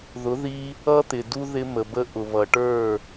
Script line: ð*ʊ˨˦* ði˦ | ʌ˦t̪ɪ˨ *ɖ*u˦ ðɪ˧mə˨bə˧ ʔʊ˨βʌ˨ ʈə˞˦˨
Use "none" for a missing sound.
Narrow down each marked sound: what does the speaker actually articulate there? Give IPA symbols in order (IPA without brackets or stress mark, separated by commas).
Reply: ʊ˨˦, d